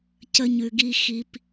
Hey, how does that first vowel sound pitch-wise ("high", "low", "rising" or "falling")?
high